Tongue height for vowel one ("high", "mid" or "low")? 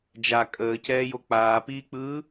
low